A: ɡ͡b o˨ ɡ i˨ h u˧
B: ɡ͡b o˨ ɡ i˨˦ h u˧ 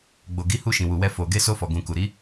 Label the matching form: B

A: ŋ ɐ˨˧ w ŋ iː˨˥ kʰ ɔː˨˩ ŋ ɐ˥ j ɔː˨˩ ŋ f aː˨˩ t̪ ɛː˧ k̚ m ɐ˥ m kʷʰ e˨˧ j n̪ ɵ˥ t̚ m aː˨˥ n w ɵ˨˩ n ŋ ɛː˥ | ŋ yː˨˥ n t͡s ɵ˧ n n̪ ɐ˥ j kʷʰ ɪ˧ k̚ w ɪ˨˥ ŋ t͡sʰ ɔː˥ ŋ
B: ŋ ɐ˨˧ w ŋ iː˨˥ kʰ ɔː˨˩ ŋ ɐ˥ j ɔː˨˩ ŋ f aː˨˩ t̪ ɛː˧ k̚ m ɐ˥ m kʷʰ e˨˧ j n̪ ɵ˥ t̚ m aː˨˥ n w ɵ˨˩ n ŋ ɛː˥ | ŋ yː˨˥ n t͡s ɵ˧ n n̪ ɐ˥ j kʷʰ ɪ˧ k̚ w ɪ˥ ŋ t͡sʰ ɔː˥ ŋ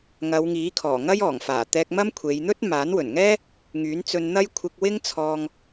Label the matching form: B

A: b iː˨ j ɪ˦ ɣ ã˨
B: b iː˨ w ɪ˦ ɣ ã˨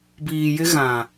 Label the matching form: A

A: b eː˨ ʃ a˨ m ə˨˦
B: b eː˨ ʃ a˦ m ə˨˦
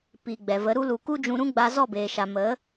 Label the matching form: A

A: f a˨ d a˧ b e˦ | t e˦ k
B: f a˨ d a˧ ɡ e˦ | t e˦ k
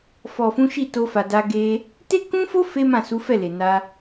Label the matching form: B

